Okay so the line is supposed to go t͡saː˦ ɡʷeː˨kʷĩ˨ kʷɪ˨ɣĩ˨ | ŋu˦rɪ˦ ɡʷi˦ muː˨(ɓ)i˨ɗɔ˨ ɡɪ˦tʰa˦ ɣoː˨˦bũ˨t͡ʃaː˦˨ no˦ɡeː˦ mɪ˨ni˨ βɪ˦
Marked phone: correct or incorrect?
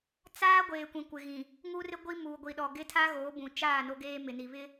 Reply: incorrect